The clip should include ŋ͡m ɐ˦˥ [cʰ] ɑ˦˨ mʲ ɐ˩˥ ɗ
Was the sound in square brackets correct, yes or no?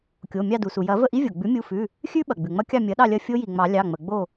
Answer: no